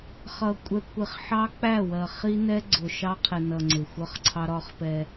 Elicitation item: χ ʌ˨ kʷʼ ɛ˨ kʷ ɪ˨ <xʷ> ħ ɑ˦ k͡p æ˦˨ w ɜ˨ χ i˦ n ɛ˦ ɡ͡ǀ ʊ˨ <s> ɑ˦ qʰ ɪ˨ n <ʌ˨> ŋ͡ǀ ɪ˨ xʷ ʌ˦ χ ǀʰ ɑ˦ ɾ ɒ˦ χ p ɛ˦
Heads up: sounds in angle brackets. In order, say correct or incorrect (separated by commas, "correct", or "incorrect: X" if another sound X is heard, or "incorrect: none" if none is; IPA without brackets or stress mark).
incorrect: χ, incorrect: ʃ, correct